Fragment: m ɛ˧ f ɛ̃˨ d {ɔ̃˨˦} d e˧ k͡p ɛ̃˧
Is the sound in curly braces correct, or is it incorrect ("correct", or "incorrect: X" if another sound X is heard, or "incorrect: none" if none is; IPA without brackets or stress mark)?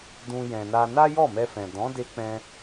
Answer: correct